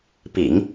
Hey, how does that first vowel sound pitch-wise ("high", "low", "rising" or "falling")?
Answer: low